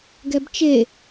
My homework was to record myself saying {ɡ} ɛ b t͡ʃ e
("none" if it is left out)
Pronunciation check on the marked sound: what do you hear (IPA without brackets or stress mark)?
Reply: ɡ